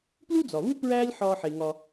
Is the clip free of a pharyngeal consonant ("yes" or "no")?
no